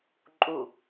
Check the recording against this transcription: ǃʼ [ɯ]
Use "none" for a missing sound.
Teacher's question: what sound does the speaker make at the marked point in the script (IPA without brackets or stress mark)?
u